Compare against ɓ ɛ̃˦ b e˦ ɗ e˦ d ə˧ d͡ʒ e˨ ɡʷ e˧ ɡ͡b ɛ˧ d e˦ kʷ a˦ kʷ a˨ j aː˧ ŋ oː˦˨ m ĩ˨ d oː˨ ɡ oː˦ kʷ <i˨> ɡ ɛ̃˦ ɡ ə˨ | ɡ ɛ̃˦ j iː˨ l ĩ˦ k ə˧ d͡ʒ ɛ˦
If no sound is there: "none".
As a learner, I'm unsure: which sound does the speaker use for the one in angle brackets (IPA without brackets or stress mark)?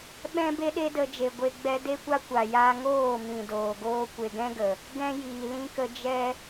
e˨